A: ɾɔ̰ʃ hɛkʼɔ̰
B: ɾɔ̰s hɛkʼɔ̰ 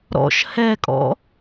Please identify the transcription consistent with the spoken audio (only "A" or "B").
A